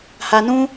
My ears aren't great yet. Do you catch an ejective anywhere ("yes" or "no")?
no